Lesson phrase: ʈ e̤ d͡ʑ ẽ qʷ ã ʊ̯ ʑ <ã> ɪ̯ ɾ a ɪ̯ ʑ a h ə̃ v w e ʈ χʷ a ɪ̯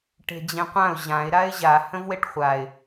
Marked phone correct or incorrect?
correct